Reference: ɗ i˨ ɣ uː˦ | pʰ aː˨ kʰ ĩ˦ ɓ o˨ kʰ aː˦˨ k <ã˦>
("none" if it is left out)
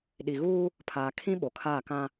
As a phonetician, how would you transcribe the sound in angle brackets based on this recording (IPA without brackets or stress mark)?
ã˦